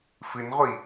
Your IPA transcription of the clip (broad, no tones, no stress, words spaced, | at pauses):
fɨnʁʷi